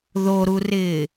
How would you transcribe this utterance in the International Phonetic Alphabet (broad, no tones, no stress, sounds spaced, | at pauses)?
ð o ɾ u r ɪː